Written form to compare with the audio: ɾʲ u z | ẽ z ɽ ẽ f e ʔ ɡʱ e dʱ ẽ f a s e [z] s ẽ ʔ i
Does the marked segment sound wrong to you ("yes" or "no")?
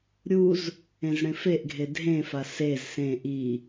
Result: no